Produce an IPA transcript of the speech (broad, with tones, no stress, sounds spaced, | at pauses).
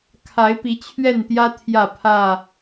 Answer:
kʰ a˨˦ ɪ̯ p i˨˦ t͡ɕʰ ɥ ɛ˥˨ n t̪ j ä˦ t̪ʰ j ä˥˨ pʰ ä˥˨